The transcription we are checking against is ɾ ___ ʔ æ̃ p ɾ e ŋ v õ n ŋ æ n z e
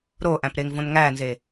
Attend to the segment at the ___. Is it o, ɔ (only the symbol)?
o